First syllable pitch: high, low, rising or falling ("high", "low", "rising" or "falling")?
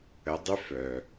rising